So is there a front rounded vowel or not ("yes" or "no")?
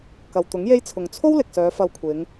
yes